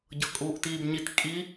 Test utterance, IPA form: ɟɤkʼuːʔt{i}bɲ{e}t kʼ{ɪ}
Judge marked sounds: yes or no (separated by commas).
no, no, no